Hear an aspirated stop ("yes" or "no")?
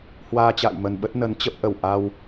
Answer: no